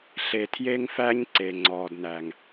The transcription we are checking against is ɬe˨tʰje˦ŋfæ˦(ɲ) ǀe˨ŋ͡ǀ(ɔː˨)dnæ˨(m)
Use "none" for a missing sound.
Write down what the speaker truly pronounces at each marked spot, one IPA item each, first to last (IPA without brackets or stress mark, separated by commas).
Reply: ɲ, ɔː˨, ŋ